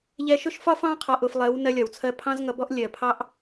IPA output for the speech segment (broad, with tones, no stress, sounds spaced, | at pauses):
ʎ ɛ˧ ʃ ʊ˦ ʃ f ɒ˦ f ɑ̃˦ qʰ ɒ˧ ʔ ʊ˧ f lˠ ɜ˨˦ w n ɜ˧ lʲ ɒ˨ w t͡sʰ ɜ˧ pʰ ɑ̃˦ z ŋ ʌ˧ b ɔ˦ ʔ lʲ ɜ˨ pʰ ɑ˦ ʔ